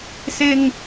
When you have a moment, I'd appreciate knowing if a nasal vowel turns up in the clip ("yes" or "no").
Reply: no